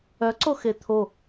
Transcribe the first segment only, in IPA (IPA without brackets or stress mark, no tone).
œ